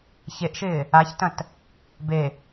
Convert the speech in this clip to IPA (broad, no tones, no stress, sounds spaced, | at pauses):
ç e ʔ ʃ ɪː | a ç t ɐ̃ t | b e